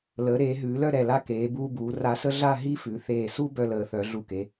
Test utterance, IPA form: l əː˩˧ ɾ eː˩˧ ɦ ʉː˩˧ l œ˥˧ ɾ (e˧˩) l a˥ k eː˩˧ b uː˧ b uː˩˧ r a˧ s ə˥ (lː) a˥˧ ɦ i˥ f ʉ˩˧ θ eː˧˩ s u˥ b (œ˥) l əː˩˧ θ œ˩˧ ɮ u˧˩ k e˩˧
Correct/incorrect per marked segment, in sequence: incorrect, incorrect, incorrect

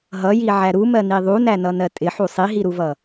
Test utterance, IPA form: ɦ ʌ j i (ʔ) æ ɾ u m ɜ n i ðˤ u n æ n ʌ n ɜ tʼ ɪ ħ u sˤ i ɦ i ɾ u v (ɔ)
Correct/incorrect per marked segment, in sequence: incorrect, incorrect

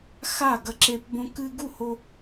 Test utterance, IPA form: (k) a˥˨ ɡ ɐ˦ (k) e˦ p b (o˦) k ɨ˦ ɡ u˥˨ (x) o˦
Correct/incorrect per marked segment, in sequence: incorrect, incorrect, incorrect, incorrect

